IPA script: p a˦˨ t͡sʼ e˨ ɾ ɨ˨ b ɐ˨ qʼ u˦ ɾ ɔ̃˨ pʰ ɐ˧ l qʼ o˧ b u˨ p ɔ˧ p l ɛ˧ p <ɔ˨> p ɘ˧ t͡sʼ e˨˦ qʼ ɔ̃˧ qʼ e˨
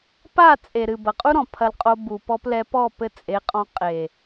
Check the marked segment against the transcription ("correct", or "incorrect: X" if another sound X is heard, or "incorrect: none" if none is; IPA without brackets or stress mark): incorrect: ɔ˦˨